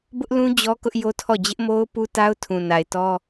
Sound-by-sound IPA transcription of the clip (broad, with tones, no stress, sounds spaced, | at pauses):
b ʊ˦ ʔ l ũ˦ d͡ʑ ɔ˦ k ʊ˦ ʔ j o˦ tʰ ɔ˦˨ d͡ʑ ɪ˦ ʔ m o˦ ʊ̯ p u˦ t a˦ ʊ̯ tʰ ũ˨ n a˨ ɪ̯ t ɔ˦